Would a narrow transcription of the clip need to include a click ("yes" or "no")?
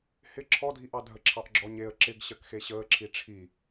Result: yes